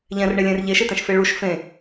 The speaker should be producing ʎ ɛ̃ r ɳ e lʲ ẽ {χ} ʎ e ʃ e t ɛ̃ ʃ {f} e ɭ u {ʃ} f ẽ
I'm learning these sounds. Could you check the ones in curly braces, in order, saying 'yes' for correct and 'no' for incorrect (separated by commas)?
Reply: no, yes, yes